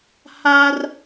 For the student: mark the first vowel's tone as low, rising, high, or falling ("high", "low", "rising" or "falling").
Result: high